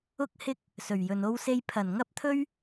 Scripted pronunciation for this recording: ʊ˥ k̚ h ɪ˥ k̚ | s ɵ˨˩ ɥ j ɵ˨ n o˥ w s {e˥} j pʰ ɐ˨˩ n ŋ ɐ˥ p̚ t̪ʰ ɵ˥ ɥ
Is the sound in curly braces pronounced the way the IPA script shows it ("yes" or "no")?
yes